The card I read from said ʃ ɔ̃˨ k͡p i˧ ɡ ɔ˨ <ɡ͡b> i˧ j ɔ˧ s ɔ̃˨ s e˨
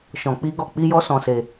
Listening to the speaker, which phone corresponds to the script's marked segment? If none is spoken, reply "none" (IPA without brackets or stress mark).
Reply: k͡p